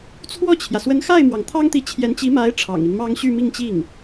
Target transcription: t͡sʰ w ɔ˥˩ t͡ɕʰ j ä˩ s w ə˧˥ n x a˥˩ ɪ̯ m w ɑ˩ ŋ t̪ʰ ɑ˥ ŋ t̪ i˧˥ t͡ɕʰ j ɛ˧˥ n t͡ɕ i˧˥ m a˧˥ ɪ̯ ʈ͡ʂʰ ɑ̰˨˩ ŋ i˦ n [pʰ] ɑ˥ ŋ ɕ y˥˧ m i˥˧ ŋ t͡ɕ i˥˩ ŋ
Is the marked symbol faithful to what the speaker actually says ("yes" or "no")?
no